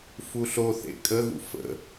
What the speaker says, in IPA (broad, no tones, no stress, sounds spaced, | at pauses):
f u ɬ o θ ḛ kʼ ə ɣ ṵ f ə̰